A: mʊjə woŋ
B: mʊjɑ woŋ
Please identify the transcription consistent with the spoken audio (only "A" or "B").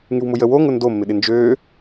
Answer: A